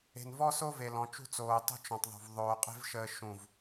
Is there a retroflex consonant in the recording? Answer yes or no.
no